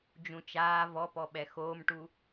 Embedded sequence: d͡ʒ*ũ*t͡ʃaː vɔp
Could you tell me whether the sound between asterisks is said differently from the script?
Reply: no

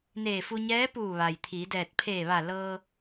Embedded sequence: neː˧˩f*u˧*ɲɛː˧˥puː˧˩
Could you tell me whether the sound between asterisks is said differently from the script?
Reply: no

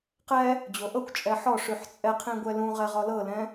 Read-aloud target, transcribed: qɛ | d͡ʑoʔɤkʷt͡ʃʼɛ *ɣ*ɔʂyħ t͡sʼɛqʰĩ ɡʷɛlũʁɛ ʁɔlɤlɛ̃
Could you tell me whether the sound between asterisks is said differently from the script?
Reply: yes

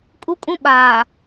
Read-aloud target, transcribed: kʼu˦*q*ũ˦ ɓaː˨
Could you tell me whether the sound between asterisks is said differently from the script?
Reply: yes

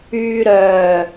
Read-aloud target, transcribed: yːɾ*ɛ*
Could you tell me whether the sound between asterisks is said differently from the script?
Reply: yes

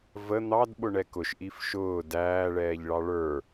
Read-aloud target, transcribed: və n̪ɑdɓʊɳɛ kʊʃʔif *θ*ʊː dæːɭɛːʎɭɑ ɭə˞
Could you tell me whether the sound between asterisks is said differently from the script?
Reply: yes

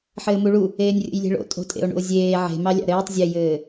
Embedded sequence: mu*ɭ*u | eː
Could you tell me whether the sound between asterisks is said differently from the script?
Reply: no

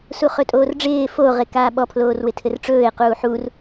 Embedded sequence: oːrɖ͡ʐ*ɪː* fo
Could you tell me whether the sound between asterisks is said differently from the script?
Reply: no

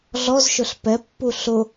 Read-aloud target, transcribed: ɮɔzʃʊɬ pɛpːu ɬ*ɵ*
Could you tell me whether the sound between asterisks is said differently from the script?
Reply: yes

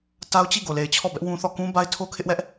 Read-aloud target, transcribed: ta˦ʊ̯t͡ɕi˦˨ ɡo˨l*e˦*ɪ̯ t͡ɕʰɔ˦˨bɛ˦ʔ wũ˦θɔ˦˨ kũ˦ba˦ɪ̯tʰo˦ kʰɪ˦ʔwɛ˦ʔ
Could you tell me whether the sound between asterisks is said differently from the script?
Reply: yes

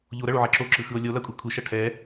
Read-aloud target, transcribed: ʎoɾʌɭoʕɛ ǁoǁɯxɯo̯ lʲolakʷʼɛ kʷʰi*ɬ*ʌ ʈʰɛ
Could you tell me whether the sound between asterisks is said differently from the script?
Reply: yes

